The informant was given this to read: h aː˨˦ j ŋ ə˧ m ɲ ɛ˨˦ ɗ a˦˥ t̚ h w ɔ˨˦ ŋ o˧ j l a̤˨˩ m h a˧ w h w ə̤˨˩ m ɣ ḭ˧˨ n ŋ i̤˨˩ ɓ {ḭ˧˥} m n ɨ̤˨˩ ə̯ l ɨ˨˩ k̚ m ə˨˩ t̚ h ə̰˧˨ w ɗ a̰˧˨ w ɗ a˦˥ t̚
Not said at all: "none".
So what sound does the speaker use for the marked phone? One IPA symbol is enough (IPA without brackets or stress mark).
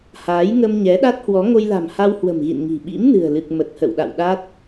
ḭ˧˥